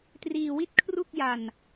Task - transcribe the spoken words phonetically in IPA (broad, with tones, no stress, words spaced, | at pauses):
triː˧wi˥˩t̚kʰru˥˩k̚ja˧n